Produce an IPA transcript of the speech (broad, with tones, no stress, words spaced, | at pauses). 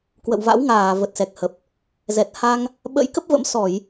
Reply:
kwə̰˧˨wva̰˧˥wŋaː˧˩ və˨˩t̚sɛ˨˩k̚hə˨˩p̚ | zɛ˨˩t̚ha˧ŋ | ɓə̰˧˥jkə˦˥p̚və̰˧˥m sɔ˧˩˨j